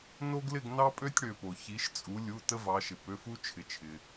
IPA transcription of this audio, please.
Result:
n o˦ ɡ l ɪ˥˨ ɡ n ɑ˦ pʼ ø˦ tʲ ɽ ø˩ p o˩ ç i˩˧ ʃ t͡sʼ u˩˧ lʲ u˩˧˩ t ə˦ v ɑ˩˧ ʃ ɪ˩ p ø˩˧˩ f u˦ t͡ʃʰ ɪ˩ t͡ʃʰ ɪ˩

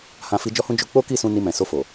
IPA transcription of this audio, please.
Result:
h ã˧ f i˧ d͡ʒ ɔ˦ h ũ˦ d͡ʒ o˦ k͡p o˦ k i˦˨ s ũ˧ n i˧ m ɛ̃˨ s o˧ f o˨

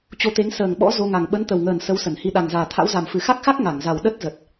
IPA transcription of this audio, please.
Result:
t͡ɕ o˧ t̪ e˨˦ ŋ s əː˨˩ ŋ ɓ ɔ̰˧˥ z o˧ ŋ a˨˩ ŋ ɓ ə˨˦ n t̪ ə˨˩ w ŋ əː˨˩ n s ə˨˦ w s ə˧˩ n h i˧ ɗ a˨˩ ŋ z aː˨˩ t̪ʰ a̰˧˥ w z a˨˩ m f ɨ˧˩ x a˦˥ k̚ x a˦˥ k̚ ŋ a˧˩ ŋ z a˨˩ w ɗ ə˦˥ t̚ z ə˨˩ t̚

